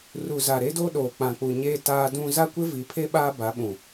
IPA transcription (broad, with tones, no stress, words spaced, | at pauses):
ru˨za˨ ɾe˦do˦ɗoː˨ k͡pã˨k͡pu˨ɲeː˦ taː˦dũ˦ za˦kʷɪ˦vi˨˦pʰe˦ ɓaː˦ba˨˦ɓũ˨